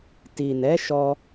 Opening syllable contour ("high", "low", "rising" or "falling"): low